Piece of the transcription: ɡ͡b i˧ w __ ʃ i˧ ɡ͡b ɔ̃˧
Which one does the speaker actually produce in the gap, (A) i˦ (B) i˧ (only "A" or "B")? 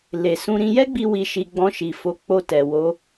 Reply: B